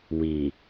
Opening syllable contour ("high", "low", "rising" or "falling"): low